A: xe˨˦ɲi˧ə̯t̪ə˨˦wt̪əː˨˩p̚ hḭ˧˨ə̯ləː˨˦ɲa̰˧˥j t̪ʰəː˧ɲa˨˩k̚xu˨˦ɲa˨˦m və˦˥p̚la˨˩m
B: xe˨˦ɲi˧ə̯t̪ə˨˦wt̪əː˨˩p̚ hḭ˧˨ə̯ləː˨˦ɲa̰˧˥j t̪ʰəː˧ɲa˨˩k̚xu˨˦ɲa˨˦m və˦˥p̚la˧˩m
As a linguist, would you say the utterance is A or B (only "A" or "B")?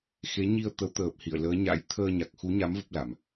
A